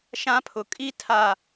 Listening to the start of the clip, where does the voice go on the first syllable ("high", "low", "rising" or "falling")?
high